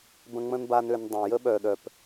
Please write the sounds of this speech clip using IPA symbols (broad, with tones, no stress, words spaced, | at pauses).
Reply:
bə̃˧ŋ͡mə̃˦nba˧n ø˧ndˤə̃˨ jə˦ɓœ˨ɗœ˨p